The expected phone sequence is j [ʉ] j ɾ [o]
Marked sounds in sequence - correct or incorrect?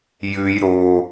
correct, correct

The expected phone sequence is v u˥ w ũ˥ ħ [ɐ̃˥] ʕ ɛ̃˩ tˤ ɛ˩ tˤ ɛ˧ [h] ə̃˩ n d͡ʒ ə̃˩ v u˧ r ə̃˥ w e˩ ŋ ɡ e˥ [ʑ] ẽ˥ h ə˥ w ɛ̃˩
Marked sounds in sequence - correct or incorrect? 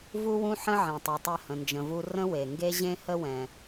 incorrect, correct, correct

